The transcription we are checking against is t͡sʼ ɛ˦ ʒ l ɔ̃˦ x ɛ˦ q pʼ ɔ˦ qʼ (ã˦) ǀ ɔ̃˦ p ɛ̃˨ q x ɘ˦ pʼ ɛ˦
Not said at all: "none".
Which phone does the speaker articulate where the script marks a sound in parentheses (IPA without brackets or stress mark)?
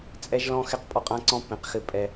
ã˦